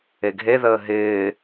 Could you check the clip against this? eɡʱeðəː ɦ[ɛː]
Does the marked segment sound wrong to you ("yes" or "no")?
yes